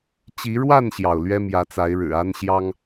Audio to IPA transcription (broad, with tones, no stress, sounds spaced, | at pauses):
t͡ɕ i˨˦ ɻ w a˥˨ n ɕ j ɑ˩ ʊ̯ l ɥ ɛ˦ m j ä˨˦ t͡s a˨˦ ɪ̯ ɻ ɻ̩˨˩ a˦ n ɕ j ɑ˦ ŋ